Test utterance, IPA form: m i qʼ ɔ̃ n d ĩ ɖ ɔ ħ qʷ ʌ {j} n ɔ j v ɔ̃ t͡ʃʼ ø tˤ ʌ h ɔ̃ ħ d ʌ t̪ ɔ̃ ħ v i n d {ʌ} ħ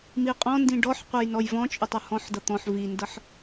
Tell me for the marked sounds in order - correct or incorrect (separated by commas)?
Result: correct, correct